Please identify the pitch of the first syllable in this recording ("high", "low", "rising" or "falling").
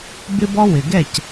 high